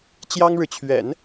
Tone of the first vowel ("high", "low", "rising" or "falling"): high